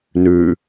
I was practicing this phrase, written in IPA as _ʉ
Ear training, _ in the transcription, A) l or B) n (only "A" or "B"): B